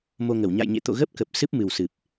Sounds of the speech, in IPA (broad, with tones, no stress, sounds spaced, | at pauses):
m o˧ ŋ ə˧˩ w ɲ a̰˧˨ j ɲ ḛ˧˨ t̪ o̰˧˨ ɣ ə˦˥ p̚ k ə˨˩ p̚ s ɨ˦˥ p̚ m ɨ˨˩ w s ɨ˨˩ p̚